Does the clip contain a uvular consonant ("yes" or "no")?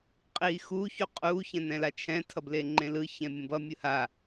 yes